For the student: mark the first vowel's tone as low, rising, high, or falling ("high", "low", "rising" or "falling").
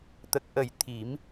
low